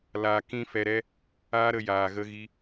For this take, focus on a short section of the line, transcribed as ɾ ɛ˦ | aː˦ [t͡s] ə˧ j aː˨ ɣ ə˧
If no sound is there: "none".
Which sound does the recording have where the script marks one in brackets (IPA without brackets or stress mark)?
ɾ